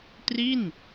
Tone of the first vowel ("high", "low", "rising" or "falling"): falling